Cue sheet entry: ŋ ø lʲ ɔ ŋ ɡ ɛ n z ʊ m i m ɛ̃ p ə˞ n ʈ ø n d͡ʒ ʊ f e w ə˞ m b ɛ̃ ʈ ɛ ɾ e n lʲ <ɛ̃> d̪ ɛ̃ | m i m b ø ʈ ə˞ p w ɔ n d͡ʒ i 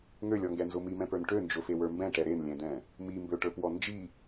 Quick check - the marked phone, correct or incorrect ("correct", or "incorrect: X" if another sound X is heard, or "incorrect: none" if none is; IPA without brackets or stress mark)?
correct